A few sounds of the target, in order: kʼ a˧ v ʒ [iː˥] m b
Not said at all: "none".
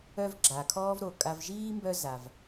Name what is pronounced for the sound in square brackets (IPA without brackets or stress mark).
iː˥